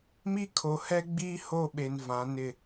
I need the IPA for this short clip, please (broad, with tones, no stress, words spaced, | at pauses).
mi˦kʰo˨hɛ˦ɡ͡biː˦ ho˦˨ɓe˨n vã˨˦nɪ˦˨